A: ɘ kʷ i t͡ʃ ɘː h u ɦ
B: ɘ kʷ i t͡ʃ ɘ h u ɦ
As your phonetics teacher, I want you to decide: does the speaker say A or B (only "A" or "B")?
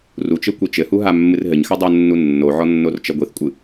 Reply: B